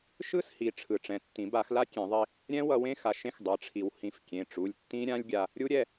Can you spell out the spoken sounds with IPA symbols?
ʃ ɯ˦˥ s h i˩˧˩ ʈ͡ʂʰ ɯ˨˩˦ ʈ͡ʂ ɛ̃˩˧˩ tː ĩ˨˩˦ b a˨˩˦ x l a˦˥ kʲ ẽ˨˩˦ ðˤ i˧ | ɾʲ ɛ̃˦˥ w ʌ˧ w ẽ˦˥ x a˩˧˩ ʃ ẽ˦˥ x dˤ ʌ˩˧˩ ʈ͡ʂʰ i˨˩˦ w h ĩ˨˩˦ f kʲ ẽ˩˧˩ ʈ͡ʂ u˩˧˩ lʲ tː ĩ˦˥ ɾʲ ã˦˥ lʲ ɡʲ a˧ | ɾʲ u˦˥ ɾʲ ɛ˩˧˩

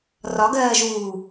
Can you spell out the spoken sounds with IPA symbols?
r ɒ ɡ ɜː ʒ uː

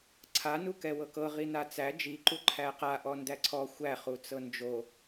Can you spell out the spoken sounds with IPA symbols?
ǀʰ a n u k ɛ w ɤ k ɤ ʁ i n a t͡s æ d͡ʒ i ǃ u ǃʰ æ q a ʔ ɔ n d æ ǀʰ ɔ xʷ æ χ u t͡s ɤ n d͡ʒ o

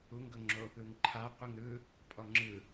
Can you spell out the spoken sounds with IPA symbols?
u ŋ ɡ ɤ ŋ͡ǁ o | ɯ ŋ ǃʰ a qʷ ɯ ŋ ɾ ɯ | pʼ ɔ ŋ͡ǁ ɯ

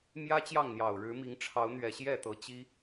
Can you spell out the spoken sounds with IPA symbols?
m j ä˦ t͡ɕ j ɑ˥˨ ŋ n̪ j ɑ˨˩ ʊ̯ ɻ ɻ̩˨˦ m i˨˦ ŋ ʈ͡ʂʰ ɑ˨˦ ʊ̯ n̪ ɥ ɛ˨˩ ɕ j ɛ˥˨ t̪ ɤ˨˦ t͡ɕ i˦

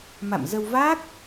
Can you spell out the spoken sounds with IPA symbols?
m a̰˧˨ m z ə˧ w v a˦˥ k̚

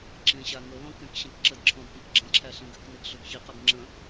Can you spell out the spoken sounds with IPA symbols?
ǁ ẽ ɕ a ŋ ə l ɔ̃ k ɛ̃ k ɕ ẽ k ǁ ə d ǁʰ ɔ̃ d p ə̃ k ɡ͡ǁ ə̃ ǁʰ æ ɬ ĩ ɡ ʏ k n e ɡ ɬ ʏ ɡ ç i q ə ɡ ŋ͡ǁ ə̃

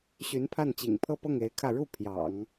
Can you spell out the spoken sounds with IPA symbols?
ɕ y˧˥ n pʰ a˥˩ n t͡ɕ ḭ˨˩ ŋ pʰ ɤ˥˧ p ɤ˥˩ ŋ e˧˥ ɪ̯ kʰ ä˥˧ ɻ u˥˩ pʰ j ɑ̰˨˩˦ ŋ

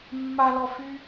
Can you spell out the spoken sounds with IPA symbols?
mː a l ɔ f y

